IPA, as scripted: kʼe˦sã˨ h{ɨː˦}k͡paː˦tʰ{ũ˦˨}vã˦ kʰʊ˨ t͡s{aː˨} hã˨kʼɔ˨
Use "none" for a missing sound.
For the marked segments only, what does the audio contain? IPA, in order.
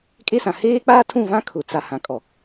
eː˦, ũ˦˨, a˨

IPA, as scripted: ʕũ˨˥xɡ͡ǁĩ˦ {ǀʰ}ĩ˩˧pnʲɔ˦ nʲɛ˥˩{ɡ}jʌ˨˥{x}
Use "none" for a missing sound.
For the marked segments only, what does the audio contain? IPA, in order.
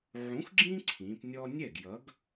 ǀʰ, ɡ, ɡ

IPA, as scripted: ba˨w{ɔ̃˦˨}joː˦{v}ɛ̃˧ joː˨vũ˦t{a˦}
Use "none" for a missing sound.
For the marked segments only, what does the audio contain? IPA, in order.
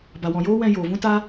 ɔ̃˨, w, a˦

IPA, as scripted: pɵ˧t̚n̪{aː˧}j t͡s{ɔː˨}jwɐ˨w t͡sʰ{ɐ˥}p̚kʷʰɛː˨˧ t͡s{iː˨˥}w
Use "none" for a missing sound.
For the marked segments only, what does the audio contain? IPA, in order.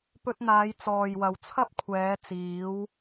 aː˨˧, ɔː˨, ɐ˥, iː˨˥

